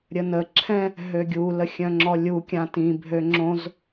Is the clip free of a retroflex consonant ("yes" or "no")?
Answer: yes